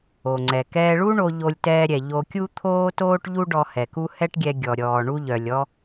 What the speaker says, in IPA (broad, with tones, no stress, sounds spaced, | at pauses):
o˩ ŋ͡ǀ ɛ˩ k ɛː˧ ɭ u˥ ɳ o˧ ʎ o˧ lʲ t ɛː˧ ɾʲ ɛ˩ ʎ o˧ kʲ u˥ t̪ʰ oː˥ t oː˥ ʈ ʎ u˥ ɖ ɔ˧ h ɛ˩ k u˥ h ɛ˥ ʈ ɡʲ ɛ˧ ɡʲ ɔ˩ ɾʲ ɔː˩ ɳ u˧ ʎ œ˩ lʲ ɔ˥